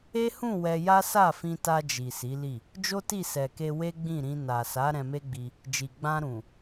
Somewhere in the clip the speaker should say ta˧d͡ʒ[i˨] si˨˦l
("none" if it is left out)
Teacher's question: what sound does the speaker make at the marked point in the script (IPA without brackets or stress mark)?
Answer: i˨